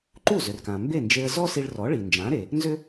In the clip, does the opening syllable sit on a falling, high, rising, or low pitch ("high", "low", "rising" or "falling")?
falling